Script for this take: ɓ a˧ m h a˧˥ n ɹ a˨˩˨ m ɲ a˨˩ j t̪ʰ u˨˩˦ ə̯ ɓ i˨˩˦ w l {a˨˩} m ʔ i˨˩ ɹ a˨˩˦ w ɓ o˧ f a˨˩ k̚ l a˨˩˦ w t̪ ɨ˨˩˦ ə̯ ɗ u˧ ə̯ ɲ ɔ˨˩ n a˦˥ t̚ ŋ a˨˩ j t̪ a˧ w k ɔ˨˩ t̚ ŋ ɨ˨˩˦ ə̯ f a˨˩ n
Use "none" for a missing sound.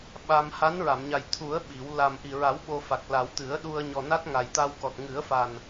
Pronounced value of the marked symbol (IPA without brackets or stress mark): a˨˩